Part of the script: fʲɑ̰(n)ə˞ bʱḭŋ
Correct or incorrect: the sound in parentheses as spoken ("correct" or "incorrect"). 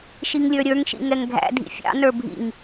correct